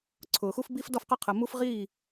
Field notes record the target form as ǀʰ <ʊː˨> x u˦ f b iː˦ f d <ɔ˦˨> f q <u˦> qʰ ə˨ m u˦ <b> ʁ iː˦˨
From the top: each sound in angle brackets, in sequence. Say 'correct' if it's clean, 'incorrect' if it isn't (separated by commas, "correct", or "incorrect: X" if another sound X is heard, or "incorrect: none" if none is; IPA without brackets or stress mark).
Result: correct, correct, incorrect: ʊ˦, incorrect: f